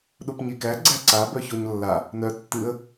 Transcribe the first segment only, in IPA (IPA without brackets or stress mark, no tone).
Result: ɗ